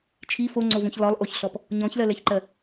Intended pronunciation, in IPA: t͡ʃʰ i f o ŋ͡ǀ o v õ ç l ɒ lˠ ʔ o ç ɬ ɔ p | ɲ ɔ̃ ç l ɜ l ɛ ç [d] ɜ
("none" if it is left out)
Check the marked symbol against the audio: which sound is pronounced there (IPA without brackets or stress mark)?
ǃ